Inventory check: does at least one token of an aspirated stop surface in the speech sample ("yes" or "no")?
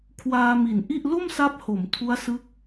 yes